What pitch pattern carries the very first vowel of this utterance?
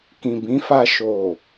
low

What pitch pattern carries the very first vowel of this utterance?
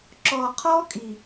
low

